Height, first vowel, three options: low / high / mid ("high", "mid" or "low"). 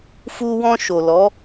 high